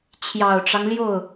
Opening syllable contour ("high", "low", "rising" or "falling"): low